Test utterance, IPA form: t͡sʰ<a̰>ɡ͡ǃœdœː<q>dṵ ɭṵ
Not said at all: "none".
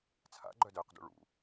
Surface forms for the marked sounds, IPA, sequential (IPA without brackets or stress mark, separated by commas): a̰, q